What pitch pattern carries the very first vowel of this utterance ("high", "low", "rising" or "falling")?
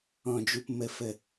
low